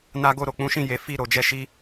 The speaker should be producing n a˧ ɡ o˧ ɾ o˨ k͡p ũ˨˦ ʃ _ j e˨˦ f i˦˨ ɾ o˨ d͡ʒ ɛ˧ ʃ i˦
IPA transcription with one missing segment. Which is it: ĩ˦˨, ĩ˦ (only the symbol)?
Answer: ĩ˦˨